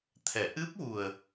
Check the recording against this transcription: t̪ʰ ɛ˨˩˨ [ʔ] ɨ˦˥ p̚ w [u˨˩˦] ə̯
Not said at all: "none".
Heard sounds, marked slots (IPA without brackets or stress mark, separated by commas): ʔ, u˨˩